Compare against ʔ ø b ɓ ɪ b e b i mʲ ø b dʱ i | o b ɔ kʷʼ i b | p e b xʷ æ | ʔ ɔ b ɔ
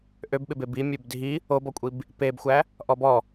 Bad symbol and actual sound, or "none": none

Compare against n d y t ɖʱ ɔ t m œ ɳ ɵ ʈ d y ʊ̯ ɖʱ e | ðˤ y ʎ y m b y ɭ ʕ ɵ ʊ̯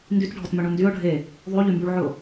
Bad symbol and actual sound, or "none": ʈ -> n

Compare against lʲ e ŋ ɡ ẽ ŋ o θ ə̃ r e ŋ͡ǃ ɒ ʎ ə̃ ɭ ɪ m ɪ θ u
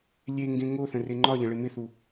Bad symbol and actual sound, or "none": none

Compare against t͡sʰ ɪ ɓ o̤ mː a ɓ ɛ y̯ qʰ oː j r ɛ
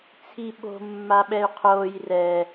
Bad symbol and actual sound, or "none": ɪ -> i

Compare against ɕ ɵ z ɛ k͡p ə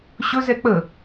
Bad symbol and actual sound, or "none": none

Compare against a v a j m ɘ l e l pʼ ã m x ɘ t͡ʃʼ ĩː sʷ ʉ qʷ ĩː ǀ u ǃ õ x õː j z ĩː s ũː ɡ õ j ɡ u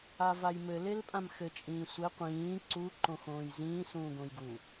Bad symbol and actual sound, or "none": ʉ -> ɘ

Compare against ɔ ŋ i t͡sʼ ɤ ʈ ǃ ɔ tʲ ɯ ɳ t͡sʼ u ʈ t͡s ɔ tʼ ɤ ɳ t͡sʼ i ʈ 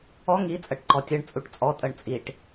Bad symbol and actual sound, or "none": t͡s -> t͡sʼ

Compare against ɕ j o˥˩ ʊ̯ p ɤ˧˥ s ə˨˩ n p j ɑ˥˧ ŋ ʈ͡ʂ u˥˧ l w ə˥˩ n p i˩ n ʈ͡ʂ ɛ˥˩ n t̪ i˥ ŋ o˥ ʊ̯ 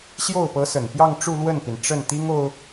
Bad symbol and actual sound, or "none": ɛ˥˩ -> ə˥˩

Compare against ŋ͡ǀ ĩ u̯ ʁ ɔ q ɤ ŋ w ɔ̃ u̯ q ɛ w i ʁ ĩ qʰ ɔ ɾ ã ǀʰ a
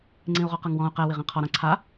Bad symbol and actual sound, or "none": none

